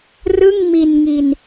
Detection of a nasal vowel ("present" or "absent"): absent